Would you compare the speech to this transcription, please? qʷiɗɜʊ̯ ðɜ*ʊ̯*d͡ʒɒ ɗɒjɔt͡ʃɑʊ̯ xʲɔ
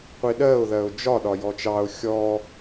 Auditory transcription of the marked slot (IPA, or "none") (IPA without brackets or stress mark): ʊ̯